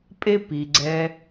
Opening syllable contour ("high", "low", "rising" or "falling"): high